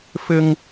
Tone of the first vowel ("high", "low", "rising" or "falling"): high